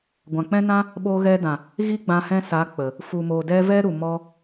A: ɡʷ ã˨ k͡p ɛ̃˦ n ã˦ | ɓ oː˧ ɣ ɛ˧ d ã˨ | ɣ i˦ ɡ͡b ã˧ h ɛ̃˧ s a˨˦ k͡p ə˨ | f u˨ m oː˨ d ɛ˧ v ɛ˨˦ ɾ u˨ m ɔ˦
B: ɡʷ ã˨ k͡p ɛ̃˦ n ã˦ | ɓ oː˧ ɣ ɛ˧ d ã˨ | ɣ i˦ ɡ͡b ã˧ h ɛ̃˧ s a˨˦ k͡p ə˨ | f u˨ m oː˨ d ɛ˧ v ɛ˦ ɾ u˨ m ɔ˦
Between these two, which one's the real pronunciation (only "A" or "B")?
B